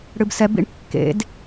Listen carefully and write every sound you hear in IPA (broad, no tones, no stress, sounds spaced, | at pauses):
ɽ ɨ b s ɛ b ḭ ɳ kː ḛ d